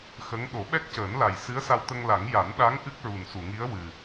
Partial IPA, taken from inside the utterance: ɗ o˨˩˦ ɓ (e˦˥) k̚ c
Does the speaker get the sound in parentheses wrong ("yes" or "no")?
yes